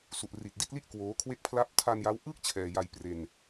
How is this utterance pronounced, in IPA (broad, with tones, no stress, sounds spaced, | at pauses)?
s u˨˩ ʔ r i˨˩ t̚ d i˥˩ t̚ l i˥˩ ʔ k w oː˦˥ kʰ w e˥˩ k̚ pʰ l a˥˩ p̚ tʰ a˧ n j a˦˥ w ʔ ɯː˥˩ k̚ t͡ɕʰ ɛː˧ j a˧ j p r e˧ n